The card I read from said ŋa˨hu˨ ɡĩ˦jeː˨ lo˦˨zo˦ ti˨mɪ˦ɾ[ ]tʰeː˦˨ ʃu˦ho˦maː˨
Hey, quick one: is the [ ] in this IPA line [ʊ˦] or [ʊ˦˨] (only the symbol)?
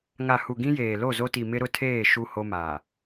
ʊ˦